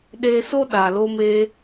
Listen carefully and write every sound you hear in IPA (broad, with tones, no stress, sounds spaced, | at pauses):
ɗ eː˧ s o˦ ɗ a˨ l o˧ m eː˧